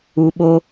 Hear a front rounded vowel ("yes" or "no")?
no